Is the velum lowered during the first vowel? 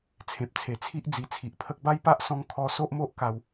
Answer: yes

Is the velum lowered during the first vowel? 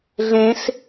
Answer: yes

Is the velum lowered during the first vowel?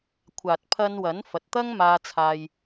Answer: no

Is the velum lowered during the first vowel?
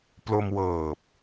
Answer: no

